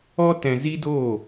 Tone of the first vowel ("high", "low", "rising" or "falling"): high